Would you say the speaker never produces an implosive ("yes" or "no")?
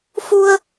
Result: yes